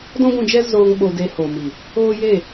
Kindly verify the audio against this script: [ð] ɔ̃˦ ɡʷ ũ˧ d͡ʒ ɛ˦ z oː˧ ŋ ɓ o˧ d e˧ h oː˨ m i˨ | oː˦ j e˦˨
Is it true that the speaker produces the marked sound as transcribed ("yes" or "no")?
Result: no